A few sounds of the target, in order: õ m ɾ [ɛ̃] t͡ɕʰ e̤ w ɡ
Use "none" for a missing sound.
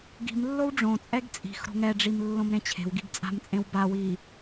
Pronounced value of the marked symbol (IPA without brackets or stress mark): ẽ